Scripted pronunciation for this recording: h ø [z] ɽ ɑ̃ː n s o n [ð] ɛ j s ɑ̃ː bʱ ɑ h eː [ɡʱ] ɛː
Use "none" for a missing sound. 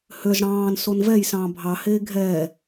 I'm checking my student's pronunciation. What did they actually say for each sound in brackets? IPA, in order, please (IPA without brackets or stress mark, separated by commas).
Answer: z, v, ɡʱ